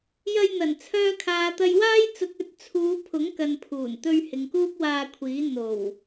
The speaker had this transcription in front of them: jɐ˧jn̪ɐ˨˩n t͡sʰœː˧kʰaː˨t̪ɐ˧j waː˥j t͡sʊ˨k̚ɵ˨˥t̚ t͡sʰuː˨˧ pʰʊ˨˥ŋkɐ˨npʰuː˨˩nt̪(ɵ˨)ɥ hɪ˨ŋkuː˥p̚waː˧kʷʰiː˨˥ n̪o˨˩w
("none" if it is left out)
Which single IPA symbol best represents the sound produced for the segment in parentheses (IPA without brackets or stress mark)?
ɵ˧